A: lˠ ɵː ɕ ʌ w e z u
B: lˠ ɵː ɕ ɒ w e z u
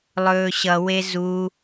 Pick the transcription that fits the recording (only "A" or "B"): A